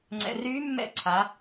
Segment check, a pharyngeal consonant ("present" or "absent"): absent